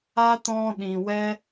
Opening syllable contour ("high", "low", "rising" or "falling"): high